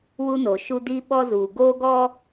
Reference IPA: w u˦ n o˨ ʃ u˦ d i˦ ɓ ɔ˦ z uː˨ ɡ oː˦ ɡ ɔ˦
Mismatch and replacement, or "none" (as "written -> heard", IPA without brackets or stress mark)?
none